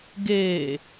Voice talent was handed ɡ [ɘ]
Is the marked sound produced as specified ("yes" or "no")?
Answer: no